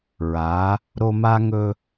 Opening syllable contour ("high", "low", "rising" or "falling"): rising